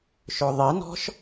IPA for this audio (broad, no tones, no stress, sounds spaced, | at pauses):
ʃ ɵ ðˤ i n ɔ̤ ʃ